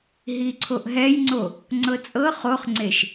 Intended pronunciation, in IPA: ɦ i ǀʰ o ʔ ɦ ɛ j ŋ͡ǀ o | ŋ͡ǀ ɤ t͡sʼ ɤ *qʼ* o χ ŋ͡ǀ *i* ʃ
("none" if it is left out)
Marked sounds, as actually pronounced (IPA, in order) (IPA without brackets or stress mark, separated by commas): χ, e